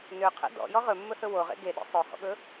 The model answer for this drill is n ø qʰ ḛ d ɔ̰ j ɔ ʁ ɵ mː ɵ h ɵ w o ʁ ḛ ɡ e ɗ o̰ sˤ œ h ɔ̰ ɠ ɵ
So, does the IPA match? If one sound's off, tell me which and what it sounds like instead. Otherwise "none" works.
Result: none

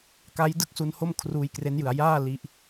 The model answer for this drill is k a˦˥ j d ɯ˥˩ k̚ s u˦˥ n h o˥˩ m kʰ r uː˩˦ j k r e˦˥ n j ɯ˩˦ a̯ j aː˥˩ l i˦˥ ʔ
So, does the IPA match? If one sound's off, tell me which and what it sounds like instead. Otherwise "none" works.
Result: uː˩˦ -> uː˧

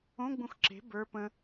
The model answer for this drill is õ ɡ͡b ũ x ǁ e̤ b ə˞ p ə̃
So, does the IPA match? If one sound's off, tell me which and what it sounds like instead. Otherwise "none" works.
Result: none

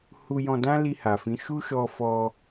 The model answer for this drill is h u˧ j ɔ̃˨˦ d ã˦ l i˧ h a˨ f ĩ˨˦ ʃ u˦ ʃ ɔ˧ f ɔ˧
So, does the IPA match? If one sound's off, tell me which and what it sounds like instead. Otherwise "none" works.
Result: ɔ̃˨˦ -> ɔ̃˧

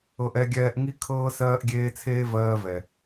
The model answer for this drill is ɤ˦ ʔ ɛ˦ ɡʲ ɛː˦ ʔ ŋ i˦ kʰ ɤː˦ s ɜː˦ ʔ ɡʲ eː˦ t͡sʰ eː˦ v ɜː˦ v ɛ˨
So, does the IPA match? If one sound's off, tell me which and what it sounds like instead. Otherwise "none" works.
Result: none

